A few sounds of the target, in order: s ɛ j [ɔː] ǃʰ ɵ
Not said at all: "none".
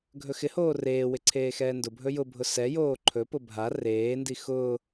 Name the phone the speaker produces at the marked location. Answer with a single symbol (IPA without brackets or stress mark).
oː